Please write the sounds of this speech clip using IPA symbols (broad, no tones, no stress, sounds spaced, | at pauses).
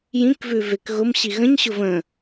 j ĩ k v ʉ v e k ɣ ʊ m ɕ i ɣ ə̃ ɲ ɕ ʊ v ə̃